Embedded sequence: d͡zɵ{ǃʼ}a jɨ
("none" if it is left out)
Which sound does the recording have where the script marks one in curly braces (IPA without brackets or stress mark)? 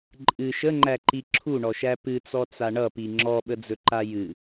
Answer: ǃ